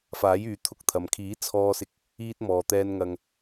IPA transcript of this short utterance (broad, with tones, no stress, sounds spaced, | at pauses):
f aː˨˥ j yː˨˧ t̪ʰ ʊ˧ k̚ t̪ʰ ɐ˨ m kʰ iː˨˥ t͡sʰ ɔː˧ s ɪ˧ k̚ | iː˧ t̚ m ɔː˨ t̪ ɛː˧ n ŋ ɐ˧ ŋ